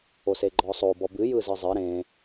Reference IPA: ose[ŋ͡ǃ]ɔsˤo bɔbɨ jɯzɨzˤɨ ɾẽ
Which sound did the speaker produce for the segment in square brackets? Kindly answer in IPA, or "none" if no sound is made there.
ɡ͡ǃ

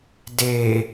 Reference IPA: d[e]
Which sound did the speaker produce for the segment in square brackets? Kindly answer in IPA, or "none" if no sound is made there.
e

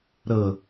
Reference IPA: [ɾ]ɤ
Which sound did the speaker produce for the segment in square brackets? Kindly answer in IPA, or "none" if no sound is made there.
ɾ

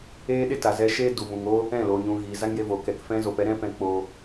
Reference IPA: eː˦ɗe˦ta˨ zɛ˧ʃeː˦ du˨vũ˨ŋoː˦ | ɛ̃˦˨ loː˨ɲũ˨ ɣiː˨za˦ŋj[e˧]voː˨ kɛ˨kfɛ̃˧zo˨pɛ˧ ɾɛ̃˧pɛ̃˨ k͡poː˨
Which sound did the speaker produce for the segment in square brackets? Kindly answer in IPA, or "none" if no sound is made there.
e˧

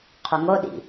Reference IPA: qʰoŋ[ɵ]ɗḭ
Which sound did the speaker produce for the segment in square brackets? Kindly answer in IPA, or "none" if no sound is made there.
o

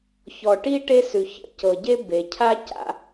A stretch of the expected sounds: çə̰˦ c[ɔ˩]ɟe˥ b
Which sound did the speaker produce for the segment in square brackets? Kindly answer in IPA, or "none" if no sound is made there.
ɤ˩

